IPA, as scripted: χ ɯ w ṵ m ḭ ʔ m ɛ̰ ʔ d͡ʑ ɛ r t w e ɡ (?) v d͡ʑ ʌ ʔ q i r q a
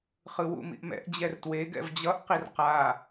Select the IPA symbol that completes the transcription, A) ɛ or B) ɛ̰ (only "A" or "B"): B